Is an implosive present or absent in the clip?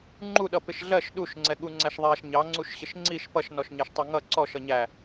present